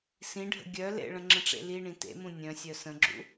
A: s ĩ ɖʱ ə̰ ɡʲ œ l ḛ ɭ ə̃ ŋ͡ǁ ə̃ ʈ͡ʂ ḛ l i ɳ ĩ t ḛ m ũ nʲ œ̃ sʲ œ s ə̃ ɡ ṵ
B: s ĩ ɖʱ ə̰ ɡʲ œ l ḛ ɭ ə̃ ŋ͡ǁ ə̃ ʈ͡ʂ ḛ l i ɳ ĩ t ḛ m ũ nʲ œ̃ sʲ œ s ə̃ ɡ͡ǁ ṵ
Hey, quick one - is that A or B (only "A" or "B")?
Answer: B